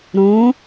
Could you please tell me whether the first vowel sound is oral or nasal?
nasal